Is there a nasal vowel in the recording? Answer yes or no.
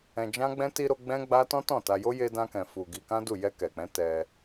yes